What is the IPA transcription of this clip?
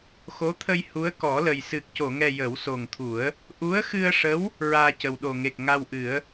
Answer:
x o˧˥ t̪ʰ ə˧ j h u˧˥ ə̯ k ɔ˨˩˦ l ə˨˩ j s ɨ˨˩ k̚ c o˨˩˨ ŋ ɛ˨˩ j ə˨˩˦ w s o˨˩ ŋ t̪ʰ u˨˩˦ ə̯ | ʔ u˧˥ ə̯ x ɨ˧ ə̯ ʂ ə˧˥ w | ɹ aː˧ c ə˨˩ w ɗ o˨˩ ŋ e˨˩ k̚ ŋ a˧ w ʔ ɨ˨˩˦ ə̯

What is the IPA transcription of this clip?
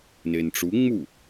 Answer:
n e n ʈ͡ʂ u ŋ͡m u

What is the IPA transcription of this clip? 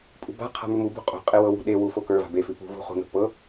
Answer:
pʼ ṳ b a̤ qʰ a̤ m ʉ m u b ṳ qʼ o̤ qʼ e w ɤ w ṳ ɗ e w u f o k ə˞ v a̤ b e f ʉ p ṳ v ṳ χ ṳ n o̤ p ɤ

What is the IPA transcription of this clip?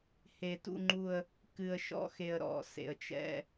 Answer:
h e˨˩ t ṵ˦˨ ŋ͡ǃ u˦˨ ə̯ | k ɨ˨˩ ə̯ ʃ ɔ̰˦˨ x e˨˩ ə̯ ɾ ɔ̰˨˩ s ḛ˨˩ ə̯ t͡ʃ ɛ̰˦˨

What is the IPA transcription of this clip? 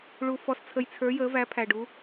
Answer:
ɭ u˩ f ɔ˩ s t͡sʰ ə˩ j t͡sʰ ə˞˩˧ j əː˩˧ v æ˩˧ pʰ æ˩ ɖ u˩˧

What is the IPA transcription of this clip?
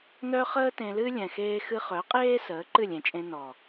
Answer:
n œ˦ χ əː˦ t ẽ˧ l ɨ˦ lʲ ɛ̃˨ x eː˧ x ɨ˧ χ œ˨˦ qʼ eː˦ s əː˨˦ ǃ ɨ˦˨ lʲ ẽ˨ t͡ʃʼ ẽ˧ n ɔ˨

